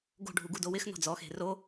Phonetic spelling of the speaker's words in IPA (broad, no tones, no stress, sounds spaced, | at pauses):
ɡ o̤ ɖʱ u ɡ u d o w ɪ x n ɔ̤ d͡z ɔ x e̤ r o